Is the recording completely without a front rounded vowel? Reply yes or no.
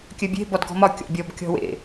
no